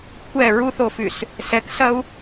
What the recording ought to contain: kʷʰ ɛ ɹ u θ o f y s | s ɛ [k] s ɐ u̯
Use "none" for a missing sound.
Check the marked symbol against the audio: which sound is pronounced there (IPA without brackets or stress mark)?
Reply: k